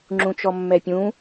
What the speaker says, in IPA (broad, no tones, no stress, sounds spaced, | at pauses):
ŋ͡ǁ ũ t͡ʃ ɔ mː ɛ pʲ ũ